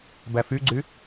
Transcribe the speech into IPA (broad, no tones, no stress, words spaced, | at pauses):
bæfyɡ͡ǀy